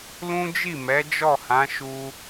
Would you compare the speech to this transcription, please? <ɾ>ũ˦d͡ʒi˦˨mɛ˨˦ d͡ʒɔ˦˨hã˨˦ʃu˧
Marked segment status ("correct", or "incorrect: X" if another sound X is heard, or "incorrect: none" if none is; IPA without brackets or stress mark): incorrect: l